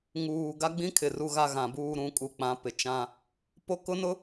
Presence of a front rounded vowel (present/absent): absent